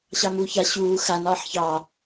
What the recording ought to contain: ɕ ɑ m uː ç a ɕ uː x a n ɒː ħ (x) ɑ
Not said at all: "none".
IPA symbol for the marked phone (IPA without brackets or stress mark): ç